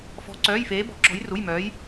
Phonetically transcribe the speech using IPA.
f ɔ̤˧˥ ǀ œː˧˥˧ j f eː˧˥ b ɔ̤˧˥ ǁ ɔ̤˧˥ j r u˧˥˧ j m œː˧˥ j

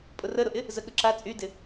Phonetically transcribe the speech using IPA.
pʼ ʊ r ə ɾ ʊ ʔ ɪ | z ə ɠ ə ǁ a t͡sʼ y d ɪ

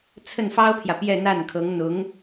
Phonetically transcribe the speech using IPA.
t͡sʰ ə˥˩ n f ɑ˥ ʊ̯ pʰ j ä˨ p j ɛ˥˧ n̪ a˥˩ n kʰ ɤ˧˥ ŋ n̪ ʊ˧˥ ŋ

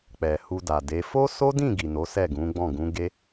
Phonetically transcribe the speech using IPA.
k͡p ɛ˨ h u˧ d a˨ d e˨˦ f o˦ s o˦ d ĩ˦˨ ɡ i˨ n o˨˦ s ɛ˦˨ ɡ ũ˨˦ ɡ͡b ɔ̃˦˨ ɡ ũ˨˦ ɡ e˦

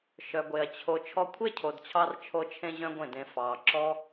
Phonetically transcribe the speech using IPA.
ʃ œ˨ ɡʷ e˨ ɐ̯ t͡ɕʰ o˨ t͡ʃʰ ɔ˧ kʷʰ e˦ cʰ o˨ d t͡ɕʰ ɑ˧ r t͡ʃʰ o˧ t͡ʃʰ ẽ˧ ʑ œ̃˦ ɡʷ ẽ˦˨ d ẽ˧ f ɑ˨ ǁ ɔ˦

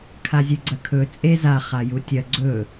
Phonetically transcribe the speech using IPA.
kʰ a zʲ ʉ ɡ͡ǀ ɐ kʰ ɵ t͡sʼ e z a χ a j u tʲ ɐ ɡ͡ǀ ɵ

